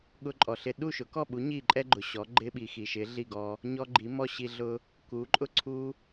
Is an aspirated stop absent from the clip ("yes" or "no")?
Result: no